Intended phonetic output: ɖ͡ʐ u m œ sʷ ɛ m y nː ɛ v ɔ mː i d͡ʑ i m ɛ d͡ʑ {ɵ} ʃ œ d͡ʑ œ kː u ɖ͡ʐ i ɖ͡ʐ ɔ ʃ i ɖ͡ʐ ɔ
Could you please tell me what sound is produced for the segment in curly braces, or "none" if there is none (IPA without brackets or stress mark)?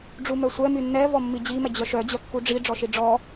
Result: œ